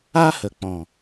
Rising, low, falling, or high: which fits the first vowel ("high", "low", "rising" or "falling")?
high